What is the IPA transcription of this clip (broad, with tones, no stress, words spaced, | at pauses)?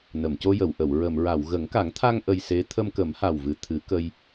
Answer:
nə˨˩˨mco˧jə˨˩˨wʔə˨˩˨w ɹə˨˩˨mɹa˨˩˨w ɣə˨˩˦ŋka˨˩˦ŋt̪ʰa˧ŋ ʔə˧jse˧˥ t̪ʰə˧mkə˨˩˦mha˨˩wvɨ˨˩ t̪ʰɨ˨˩˦kə˧j